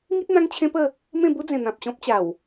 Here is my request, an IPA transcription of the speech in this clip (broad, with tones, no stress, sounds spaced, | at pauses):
ŋ i˦ t̚ n̪ ã˦ ŋ t͡ɕʰ ẽ˦ p ə˥˧ | m ẽ˥˧ b u˦ d͡z ẽ˨˩ n̪ ã˨ p̚ ɕ ɔ̃˦ p̚ t͡ɕ a˨˩ w